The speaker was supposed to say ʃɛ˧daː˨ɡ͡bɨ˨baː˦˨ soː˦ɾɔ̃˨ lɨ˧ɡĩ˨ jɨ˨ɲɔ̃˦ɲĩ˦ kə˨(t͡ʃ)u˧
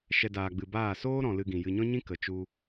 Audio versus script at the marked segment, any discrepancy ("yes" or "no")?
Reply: no